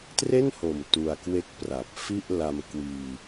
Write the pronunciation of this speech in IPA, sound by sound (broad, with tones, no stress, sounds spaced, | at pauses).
t r e˥˩ n h o˨˩ m t u˧ a̯ k w e˥˩ k̚ p r a˨˩ p̚ f i˥˩ ʔ l a˧ m k w iː˧